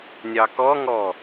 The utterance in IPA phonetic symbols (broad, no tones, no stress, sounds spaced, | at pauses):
nʲ ɑ k ɔ ŋ ɔ